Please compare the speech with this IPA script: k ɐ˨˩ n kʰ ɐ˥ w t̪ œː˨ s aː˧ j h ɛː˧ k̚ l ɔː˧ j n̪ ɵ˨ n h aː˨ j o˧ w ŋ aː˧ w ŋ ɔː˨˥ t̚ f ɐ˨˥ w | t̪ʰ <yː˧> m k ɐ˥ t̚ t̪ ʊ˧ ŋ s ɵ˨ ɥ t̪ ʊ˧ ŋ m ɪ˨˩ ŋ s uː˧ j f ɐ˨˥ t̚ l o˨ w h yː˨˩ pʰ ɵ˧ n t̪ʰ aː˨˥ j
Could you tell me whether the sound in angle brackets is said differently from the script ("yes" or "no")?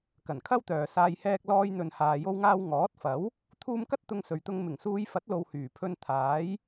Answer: yes